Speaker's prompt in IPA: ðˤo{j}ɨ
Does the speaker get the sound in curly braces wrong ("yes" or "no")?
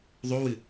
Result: yes